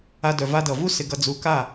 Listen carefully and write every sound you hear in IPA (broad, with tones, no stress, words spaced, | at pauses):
a˧dœ˨ va˧dʌ˨vu˦ sɪ˧ɡʌ˧ d͡zu˧ka˦˨